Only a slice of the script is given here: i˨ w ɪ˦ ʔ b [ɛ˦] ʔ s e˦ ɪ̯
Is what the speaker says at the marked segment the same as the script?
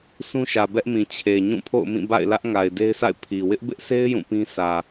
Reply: no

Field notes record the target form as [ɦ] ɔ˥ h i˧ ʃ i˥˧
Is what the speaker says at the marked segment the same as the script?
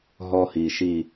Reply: yes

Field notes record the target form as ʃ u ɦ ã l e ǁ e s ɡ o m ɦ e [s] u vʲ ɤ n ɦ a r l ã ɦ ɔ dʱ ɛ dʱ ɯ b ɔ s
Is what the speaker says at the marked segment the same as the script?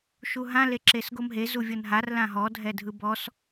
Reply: no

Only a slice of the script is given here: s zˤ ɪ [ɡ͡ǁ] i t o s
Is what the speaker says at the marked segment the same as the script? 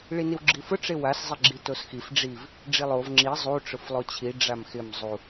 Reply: yes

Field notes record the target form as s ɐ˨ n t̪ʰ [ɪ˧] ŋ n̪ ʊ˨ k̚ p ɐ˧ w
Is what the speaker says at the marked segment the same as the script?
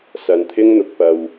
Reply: no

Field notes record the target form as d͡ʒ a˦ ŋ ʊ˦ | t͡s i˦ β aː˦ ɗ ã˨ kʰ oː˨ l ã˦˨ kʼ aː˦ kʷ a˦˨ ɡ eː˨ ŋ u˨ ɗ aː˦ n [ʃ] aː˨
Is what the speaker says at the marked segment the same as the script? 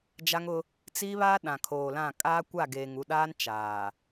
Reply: no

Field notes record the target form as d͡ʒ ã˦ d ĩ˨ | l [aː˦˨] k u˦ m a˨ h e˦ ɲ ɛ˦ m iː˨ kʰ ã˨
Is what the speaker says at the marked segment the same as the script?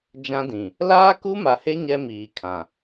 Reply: no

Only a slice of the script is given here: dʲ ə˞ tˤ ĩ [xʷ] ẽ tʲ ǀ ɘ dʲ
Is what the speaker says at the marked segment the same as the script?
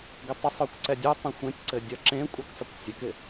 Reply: yes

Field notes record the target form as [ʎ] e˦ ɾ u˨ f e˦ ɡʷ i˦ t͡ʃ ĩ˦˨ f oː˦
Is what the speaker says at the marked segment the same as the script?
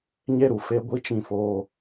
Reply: no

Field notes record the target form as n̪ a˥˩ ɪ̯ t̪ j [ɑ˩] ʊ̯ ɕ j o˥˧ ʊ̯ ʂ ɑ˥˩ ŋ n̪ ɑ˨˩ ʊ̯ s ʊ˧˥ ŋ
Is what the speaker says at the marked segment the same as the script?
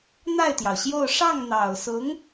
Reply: yes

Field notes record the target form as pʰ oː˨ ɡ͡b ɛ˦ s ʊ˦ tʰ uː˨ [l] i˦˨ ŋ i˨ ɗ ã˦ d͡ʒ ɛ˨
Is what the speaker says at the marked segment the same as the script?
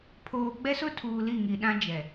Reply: yes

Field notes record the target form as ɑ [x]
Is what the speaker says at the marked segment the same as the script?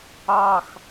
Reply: yes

